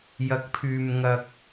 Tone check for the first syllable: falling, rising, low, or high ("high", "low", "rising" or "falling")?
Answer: low